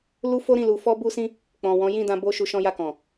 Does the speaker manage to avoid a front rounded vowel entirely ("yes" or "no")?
yes